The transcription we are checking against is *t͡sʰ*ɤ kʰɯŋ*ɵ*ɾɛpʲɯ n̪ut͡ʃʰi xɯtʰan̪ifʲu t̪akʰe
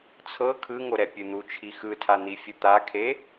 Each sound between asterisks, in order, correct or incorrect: correct, incorrect: o

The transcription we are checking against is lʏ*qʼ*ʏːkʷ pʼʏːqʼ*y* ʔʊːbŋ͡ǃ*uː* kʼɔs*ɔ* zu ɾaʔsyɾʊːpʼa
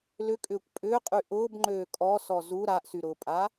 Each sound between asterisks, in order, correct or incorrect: incorrect: kʼ, correct, incorrect: øː, correct

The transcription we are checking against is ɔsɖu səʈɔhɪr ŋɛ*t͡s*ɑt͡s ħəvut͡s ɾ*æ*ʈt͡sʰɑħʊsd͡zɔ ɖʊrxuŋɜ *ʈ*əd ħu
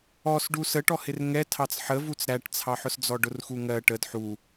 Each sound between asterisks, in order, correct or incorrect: incorrect: tʰ, correct, correct

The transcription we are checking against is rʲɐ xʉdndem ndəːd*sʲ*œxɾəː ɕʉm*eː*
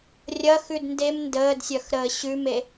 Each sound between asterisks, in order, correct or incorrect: correct, incorrect: e

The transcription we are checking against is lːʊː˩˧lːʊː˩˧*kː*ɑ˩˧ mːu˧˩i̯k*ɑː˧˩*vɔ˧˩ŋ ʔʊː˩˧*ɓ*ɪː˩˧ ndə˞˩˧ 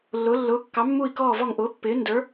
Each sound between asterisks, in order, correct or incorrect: correct, incorrect: ɔː˧˩, incorrect: pː

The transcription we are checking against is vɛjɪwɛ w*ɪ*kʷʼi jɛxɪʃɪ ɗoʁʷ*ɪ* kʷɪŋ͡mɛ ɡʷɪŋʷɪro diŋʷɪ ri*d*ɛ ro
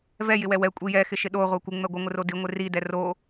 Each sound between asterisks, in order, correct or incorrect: incorrect: ɛ, incorrect: ɛ, correct

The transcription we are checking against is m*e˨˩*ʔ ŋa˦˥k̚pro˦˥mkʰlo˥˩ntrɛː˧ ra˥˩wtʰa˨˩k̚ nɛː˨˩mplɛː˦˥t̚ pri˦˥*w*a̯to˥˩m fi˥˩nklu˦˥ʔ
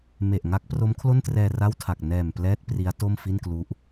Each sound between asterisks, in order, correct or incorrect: correct, incorrect: none

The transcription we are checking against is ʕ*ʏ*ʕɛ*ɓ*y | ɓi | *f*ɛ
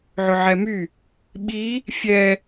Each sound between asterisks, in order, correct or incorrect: correct, incorrect: m, incorrect: fʲ

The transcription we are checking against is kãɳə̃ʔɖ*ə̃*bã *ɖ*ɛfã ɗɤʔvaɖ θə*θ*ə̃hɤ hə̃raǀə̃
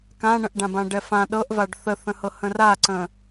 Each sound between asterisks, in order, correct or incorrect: incorrect: ã, correct, correct

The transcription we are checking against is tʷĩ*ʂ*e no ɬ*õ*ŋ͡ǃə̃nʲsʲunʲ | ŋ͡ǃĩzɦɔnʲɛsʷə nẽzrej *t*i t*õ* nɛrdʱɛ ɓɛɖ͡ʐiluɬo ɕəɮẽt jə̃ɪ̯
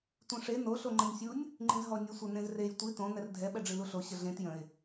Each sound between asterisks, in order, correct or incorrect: correct, incorrect: o, incorrect: tʷ, correct

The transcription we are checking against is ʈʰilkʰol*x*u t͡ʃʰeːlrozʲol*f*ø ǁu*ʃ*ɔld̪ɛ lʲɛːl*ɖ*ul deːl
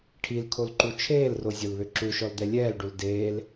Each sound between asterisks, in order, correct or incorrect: incorrect: ǃ, incorrect: β, correct, correct

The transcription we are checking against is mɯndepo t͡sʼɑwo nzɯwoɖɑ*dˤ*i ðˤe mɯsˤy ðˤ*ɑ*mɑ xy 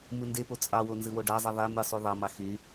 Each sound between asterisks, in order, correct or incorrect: incorrect: zˤ, correct

